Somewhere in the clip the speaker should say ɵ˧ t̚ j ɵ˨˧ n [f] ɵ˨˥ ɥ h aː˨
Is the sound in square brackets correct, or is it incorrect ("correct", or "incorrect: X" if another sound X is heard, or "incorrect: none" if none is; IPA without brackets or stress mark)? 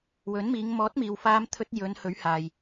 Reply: incorrect: h